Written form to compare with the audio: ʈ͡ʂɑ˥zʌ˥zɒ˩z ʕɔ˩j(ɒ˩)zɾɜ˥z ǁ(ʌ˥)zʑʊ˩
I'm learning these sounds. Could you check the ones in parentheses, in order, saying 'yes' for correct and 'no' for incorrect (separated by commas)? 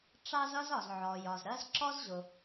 yes, no